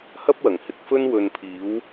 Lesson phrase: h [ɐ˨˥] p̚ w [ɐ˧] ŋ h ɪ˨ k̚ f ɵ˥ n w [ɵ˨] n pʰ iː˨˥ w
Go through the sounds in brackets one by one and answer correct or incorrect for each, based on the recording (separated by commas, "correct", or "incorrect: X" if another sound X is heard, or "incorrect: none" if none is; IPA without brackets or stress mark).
incorrect: ɐ˥, incorrect: ɐ˨˩, incorrect: ɵ˧